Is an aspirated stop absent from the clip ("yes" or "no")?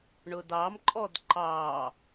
yes